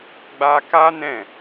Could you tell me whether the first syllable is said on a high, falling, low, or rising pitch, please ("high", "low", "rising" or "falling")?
high